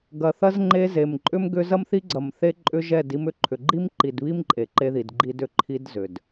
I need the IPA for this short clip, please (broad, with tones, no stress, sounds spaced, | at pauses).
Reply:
ɡ ɐ˨ θ ɐ˦ z ŋ͡ǃ e˦ z e˨ m ǃʼ ʏ˦ m ɡ ʏ˦ z ɐ˦ m θ i˦ ɡ͡ǀ ɐ˨ m θ e˦ ǃʼ ʏ˦ ʒ ɛ˦˨ d i˦ m ʏ˦˨ ǃʰ ʏ˨ ɡ͡ǃ i˦ m ǃ i˨ d β i˦ m ǃʼ e˨ ǃ e˦ ð i˨ d ɡ͡ǃ i˦ d ʏ˨ ǃʰ i˦ d z ʏ˨ d